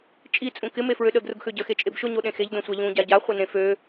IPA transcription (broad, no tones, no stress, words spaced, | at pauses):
t͡ʃʼi t͡sʼũkɪ mefɹøɗə ɡrʊɡxøɟə xet͡ʃʼebʃʊ ɲoɗẽxeʎ dõsʷaʎũ ɟaɟa χʷənẽfø